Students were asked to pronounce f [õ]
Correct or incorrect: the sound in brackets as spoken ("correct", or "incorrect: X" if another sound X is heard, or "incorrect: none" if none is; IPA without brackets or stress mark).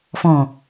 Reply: incorrect: ɔ̃